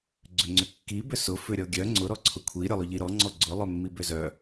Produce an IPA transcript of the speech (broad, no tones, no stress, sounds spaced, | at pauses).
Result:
ɡ͡ǀ ʏ ŋ͡ǀ ʏ kː i b ʏ s ʊ f ʏ ɾʲ ɔ ɡʲ œ ŋ͡ǀ ʊ ɾ ɔ ǀʰ ʊ kʷʰ i ɾʲ ʊ lˠ ʊ ʎ i ɾ ɔ ŋ͡ǀ ɔ ɡ͡ǀ ʊ lˠ œ mː i b ʏ z œ